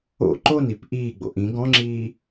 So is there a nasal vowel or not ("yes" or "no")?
yes